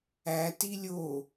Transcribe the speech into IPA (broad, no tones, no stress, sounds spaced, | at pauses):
æ t i lʲ o